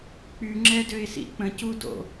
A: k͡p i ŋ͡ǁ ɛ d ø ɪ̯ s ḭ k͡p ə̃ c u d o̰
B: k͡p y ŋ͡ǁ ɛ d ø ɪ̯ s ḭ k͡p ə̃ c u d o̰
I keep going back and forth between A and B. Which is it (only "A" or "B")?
B